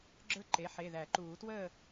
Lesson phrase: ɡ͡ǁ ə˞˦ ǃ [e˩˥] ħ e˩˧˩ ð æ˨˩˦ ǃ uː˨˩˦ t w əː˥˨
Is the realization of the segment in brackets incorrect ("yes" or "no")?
no